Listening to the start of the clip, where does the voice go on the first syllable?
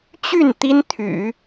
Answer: falling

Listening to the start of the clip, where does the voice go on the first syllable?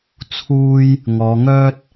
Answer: high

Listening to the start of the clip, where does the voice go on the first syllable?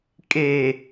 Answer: low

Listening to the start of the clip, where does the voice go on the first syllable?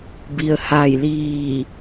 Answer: low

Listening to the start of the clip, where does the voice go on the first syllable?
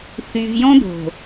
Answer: low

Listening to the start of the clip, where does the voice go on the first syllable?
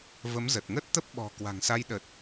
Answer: rising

